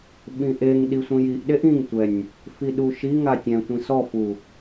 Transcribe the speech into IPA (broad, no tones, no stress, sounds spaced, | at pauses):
ɓ ĩ ʔ e ŋ ɗ i sʷ ĩ j i ʔ ɗ e ʔ ĩ ŋ tʷ ɛ nʲ | f i ɗ u ʃ i ŋ a tʲ ɛ̃ tʷ ĩ s ɔ f u